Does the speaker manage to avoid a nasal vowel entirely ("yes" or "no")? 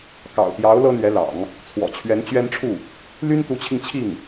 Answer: yes